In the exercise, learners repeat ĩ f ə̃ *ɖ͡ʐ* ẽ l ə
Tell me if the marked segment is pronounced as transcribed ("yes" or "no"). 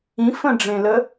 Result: yes